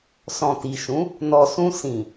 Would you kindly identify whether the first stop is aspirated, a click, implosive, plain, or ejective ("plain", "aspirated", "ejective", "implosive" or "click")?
plain